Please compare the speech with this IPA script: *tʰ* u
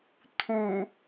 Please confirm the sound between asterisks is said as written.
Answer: yes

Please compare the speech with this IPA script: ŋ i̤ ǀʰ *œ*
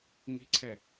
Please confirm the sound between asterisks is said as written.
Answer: no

